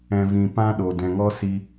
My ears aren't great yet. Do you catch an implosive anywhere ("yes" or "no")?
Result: yes